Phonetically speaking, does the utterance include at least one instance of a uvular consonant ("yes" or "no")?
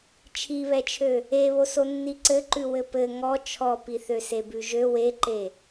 no